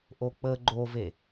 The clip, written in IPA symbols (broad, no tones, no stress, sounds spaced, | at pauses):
ʔ o k͡p ə ɡ͡ǃ o v e